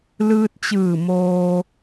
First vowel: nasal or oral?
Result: oral